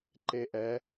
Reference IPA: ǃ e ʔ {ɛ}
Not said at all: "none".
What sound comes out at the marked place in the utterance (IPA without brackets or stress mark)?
ɛ